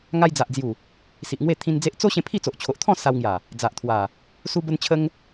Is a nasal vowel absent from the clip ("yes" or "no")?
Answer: no